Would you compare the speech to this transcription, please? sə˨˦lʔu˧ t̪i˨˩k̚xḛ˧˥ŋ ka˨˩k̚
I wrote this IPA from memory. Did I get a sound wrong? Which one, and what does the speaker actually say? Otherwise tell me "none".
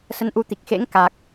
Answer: l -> n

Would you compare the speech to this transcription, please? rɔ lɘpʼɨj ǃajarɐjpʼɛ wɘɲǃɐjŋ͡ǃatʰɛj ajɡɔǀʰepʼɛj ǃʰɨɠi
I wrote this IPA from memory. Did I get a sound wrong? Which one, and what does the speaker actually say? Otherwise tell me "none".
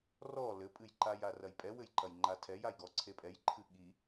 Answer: ɲ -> j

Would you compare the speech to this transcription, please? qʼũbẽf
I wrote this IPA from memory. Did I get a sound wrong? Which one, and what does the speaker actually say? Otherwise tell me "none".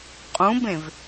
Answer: f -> v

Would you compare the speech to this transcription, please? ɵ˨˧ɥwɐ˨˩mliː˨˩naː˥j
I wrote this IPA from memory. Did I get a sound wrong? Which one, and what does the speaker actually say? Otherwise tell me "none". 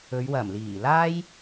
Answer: n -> l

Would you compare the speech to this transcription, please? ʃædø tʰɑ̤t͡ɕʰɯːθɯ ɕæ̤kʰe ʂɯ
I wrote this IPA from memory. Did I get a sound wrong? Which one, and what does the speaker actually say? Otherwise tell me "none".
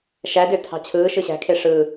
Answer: θ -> ʃ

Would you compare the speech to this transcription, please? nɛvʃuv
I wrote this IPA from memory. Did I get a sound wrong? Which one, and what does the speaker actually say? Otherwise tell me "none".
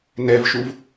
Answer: none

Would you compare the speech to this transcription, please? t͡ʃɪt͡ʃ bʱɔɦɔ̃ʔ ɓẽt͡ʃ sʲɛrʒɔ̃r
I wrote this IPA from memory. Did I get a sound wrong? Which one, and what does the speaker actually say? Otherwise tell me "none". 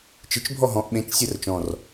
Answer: ʒ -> t͡ʃ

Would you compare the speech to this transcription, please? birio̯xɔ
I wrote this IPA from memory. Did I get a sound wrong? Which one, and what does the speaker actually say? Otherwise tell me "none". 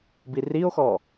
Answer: none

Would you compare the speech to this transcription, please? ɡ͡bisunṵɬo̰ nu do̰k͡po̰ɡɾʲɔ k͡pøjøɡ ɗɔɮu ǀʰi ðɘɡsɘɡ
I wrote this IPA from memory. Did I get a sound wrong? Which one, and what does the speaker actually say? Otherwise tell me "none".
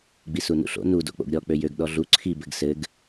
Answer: ð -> b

